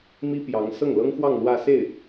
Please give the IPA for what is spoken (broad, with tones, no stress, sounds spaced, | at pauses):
m i˥ p j ɑ˧˥ ŋ s ɤ˥˩ ŋ l ɤ˥ ŋ x w ɑ˥˧ ŋ l w ä˥˧ s e˥˩ ɪ̯